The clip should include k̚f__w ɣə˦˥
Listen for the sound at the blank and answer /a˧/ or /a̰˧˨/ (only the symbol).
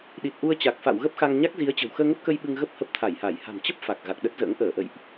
a̰˧˨